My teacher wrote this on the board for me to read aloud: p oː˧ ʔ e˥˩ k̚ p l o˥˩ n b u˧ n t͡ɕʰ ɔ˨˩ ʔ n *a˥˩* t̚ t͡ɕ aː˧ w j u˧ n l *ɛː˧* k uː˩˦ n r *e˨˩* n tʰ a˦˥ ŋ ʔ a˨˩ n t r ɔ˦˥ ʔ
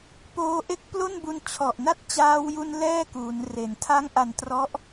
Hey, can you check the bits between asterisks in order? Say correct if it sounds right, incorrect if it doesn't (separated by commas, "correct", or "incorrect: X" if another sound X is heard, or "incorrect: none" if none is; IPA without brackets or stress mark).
correct, incorrect: ɛː˥˩, incorrect: e˩˦